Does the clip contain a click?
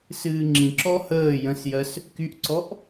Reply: yes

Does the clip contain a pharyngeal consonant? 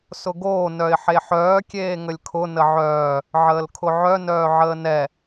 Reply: yes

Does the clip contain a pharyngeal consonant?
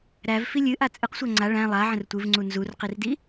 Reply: yes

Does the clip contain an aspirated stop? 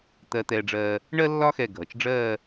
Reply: no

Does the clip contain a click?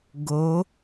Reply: no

